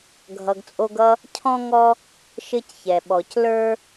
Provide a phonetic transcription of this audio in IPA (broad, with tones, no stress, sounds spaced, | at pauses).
ɡʱ ʌ˨ ɡ t͡sʼ o˦ ɡ ʌ˥ | cʰ ɔ̃˦ ŋ ɔ˦ | ʃ ɘ˦ c ç ɛ˩ ɓ ɔ˩ c l ə˞˦